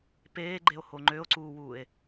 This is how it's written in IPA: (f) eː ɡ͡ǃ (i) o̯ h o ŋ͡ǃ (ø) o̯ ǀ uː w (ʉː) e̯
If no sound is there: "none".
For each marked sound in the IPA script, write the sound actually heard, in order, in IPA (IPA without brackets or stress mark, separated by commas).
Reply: p, e, ø, uː